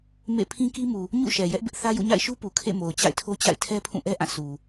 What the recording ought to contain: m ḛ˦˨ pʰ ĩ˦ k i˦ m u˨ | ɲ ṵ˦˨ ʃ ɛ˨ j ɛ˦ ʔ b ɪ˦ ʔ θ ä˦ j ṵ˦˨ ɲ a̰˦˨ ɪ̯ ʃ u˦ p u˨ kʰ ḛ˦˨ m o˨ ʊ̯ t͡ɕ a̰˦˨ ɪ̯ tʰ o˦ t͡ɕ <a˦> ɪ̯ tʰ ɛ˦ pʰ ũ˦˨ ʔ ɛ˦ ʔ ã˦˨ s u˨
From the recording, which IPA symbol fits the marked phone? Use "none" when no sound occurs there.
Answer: a̰˦˨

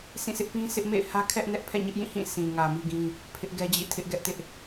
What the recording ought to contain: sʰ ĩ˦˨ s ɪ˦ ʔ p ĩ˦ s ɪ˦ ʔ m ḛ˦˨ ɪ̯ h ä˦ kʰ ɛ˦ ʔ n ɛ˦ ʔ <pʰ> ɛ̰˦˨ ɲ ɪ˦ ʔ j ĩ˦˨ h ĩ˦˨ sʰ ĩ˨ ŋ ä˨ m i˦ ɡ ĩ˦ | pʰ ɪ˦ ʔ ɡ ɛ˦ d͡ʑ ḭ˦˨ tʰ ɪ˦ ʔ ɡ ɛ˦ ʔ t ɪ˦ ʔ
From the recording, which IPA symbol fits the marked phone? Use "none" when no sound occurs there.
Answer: pʰ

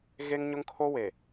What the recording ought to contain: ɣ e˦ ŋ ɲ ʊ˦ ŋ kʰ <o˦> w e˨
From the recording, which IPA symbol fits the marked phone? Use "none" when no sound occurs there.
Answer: o˦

